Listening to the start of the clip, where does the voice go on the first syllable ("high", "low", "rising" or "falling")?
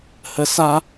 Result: low